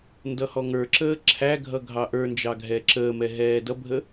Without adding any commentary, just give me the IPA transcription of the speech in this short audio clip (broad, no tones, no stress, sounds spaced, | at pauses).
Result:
n d ʌ h ɔ ŋ ə˞ ǁ əː ǁʰ æ ɡʱ ʌ ɡʱ ɑ ʔ ə˞ n d͡ʒ ɑ ɡʱ ɛ ǁ əː m ɛ ɦ ɛː d ʌ bʱ ə